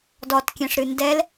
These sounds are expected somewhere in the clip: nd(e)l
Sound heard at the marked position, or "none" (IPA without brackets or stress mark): ɛ